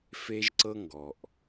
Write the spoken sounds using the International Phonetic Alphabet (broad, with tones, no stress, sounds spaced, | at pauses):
f e˦ ʒ ǀ ɤ˦ ŋ ɡ ɔ˨ ʔ